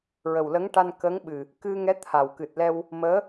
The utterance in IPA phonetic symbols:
ɹə˨˩wlə˧˥ŋʈa˧n kə˧˥ŋɓɨ˨˩ | kɨ˧ŋɛ˧˥ t̪ʰa˨˩w kɨ˨˩t̚lɛ˧w | məː˧˥

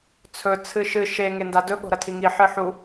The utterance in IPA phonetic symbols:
t͡sʰɵ t͡sʰɨʃɨ ʃe ŋendadɵ ɠo̤ɾɐtʰiŋi ħɨħu

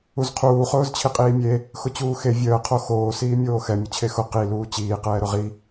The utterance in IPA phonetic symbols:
uzqʰuː χʊːzt͡ɕʰiqʼiːmʲe | xʊt͡ɕuːxe vʲəː qʰoxoː siːmʲoːxɛ mʲʊt͡ɕʰexʊ qi luːt͡ɕiː qɛːɾʊʁi

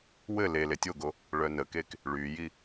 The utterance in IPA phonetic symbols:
wɘ le letʲoɡo | ɭœnəkek | ɭyji

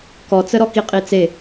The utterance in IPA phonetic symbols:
kɔt͡səɾɔki qʼit͡se

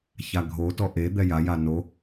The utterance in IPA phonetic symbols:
çaɡʱotɔ ʔe d̪ɛjaja no

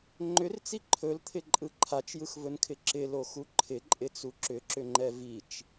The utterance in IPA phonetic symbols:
ŋ͡ǃʏrt͡si ǃʰɵlt̪ʰɪǃʼɯ ǃʰat͡ʃjɯxvɵnkʰɪ ǁɪloxu ǃʰɪǃʼɪt͡su ǁʏǁʏŋ͡ǃɛ vit͡ʃ

